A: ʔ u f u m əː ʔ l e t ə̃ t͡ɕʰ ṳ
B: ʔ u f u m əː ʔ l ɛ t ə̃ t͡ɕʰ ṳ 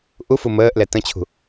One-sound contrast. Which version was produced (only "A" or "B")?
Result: B